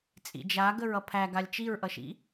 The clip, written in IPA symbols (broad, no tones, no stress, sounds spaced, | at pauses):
t͡sʼ ḭ d͡ʒ a ɡ ə ɹ ʌ pʰ æ ɡ a lʲ t͡ʃ i ɹ ʔ ʌ ʃ ḭ